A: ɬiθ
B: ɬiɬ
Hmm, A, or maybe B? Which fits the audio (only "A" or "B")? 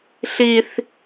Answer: A